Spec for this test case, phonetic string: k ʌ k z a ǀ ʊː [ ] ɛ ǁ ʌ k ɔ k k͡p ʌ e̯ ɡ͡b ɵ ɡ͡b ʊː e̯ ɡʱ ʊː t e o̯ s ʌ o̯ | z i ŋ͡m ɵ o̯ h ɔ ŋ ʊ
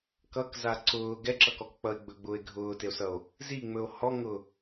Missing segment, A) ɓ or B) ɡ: B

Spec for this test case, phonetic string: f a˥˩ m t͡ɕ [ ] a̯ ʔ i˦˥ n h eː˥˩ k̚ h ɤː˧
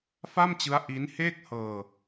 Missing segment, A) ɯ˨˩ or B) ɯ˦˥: B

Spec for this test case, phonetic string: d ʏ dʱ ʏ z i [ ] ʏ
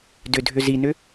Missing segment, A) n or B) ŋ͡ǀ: A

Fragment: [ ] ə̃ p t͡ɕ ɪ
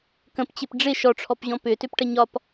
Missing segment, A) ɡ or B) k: B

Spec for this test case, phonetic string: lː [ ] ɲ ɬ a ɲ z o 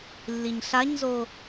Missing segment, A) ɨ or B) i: B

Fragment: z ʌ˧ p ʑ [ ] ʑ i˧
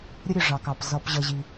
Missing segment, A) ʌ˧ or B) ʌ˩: A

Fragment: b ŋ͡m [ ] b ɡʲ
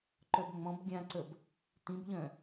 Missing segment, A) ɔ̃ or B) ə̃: A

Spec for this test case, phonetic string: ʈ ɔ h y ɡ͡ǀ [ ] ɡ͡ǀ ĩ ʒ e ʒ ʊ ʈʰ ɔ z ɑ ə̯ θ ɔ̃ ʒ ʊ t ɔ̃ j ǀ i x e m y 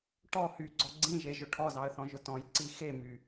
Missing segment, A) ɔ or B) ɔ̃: A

